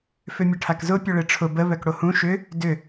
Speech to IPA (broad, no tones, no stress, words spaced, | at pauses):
fʏmʲəʈʰakzʊ pʲʊɭeʈ͡ʂʰʊ bə βœkɽohũ ʃʏ | dʏ